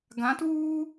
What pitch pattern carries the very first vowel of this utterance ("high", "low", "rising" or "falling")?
rising